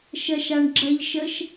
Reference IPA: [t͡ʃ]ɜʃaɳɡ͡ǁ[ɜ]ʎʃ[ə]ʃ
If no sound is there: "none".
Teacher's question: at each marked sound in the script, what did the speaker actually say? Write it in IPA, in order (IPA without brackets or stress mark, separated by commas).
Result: ʃ, ɜ, ə